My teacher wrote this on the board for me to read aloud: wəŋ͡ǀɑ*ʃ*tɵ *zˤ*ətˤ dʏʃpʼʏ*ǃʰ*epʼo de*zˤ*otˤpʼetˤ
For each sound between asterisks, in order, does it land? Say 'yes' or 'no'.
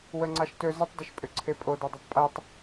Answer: yes, no, no, no

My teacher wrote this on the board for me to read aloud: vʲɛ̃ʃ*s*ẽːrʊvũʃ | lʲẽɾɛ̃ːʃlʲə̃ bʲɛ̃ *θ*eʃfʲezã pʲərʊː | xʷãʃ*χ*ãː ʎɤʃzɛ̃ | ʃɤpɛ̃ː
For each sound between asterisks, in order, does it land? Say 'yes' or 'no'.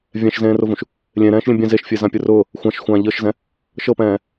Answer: no, no, no

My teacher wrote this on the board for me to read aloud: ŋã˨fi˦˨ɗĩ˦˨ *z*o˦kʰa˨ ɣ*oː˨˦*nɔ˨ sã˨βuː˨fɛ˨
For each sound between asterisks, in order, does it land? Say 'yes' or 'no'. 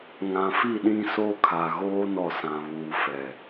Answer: no, no

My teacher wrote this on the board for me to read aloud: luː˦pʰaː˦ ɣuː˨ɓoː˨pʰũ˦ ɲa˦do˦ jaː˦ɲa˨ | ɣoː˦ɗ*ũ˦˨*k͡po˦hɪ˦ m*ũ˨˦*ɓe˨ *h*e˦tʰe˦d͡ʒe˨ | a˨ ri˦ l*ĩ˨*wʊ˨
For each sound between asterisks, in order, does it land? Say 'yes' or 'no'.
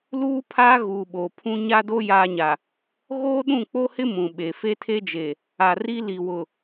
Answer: yes, no, no, no

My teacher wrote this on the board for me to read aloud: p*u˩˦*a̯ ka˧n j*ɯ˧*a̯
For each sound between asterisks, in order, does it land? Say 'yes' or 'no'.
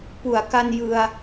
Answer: yes, yes

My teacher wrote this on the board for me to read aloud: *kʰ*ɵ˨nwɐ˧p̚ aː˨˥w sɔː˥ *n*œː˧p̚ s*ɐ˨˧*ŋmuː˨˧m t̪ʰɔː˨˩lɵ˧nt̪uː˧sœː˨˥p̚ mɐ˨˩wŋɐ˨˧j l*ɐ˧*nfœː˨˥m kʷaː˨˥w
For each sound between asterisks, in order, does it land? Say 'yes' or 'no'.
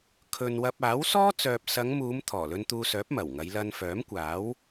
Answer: yes, no, yes, yes

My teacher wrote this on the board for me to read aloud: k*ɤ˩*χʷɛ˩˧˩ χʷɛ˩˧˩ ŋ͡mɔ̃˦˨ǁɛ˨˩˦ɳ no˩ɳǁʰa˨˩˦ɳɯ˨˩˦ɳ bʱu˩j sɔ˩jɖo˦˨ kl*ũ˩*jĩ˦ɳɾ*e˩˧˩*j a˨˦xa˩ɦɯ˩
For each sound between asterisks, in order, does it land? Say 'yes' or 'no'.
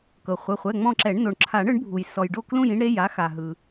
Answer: yes, no, yes

